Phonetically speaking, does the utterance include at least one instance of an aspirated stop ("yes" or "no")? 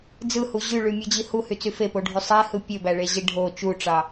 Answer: no